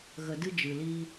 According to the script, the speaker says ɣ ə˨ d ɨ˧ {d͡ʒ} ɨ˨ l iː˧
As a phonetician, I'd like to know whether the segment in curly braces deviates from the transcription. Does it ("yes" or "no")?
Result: no